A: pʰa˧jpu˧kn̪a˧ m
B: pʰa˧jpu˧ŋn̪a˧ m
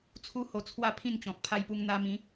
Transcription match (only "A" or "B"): B